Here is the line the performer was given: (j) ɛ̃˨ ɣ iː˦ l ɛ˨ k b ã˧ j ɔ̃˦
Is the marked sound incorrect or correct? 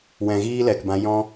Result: incorrect